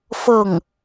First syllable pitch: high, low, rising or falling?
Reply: falling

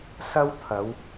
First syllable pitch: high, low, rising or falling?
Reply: high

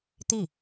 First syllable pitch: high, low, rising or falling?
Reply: falling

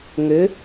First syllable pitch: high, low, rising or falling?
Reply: rising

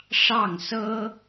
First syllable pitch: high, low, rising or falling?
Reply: falling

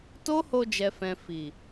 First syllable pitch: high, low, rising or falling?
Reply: high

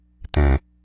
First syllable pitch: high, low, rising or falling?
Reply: low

